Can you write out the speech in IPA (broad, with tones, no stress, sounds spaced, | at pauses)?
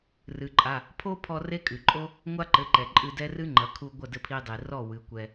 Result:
r ɨ˩ ǃʼ a˩˧˩ | pʰ o˥ pʰ ɔ˧ r e˥ kʼ ɨ˩ ǃʼ o˥ | ŋʷ a˥ ǃ ɘ˩˧˩ ǃ ɛ˩ ǃʼ ɨ˧ d ɛ˥ r ɨ˥ ŋ͡ǃ ɐ˩˧ kʰ u˧ ɡʷ ɐ˥˩ d ɘ˥˩ pʰ i˧ dˤ i˩ r ɔ˥˩ w ɨ˩˧ kʷ ɛ˧